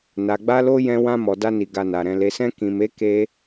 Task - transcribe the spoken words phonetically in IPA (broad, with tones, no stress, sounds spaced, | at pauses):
n a˨ ɡ͡b a˧ l o˧ j ɛ̃˧ w ã˧ m ɔ˨ d a˧ n i˨ ɡ a˨ n a˨ ɾ ɛ̃˨ l e˨ s ɛ̃˧ k ĩ˨ m e˨˦ k e˧